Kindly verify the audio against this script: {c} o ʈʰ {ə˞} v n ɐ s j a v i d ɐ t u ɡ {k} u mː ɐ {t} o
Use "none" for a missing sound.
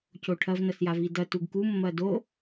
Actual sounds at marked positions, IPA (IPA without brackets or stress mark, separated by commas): c, ɐ, k, d